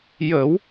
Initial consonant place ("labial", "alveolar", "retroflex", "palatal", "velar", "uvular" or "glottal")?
palatal